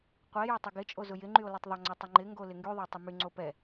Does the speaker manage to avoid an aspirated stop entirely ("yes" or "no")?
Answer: yes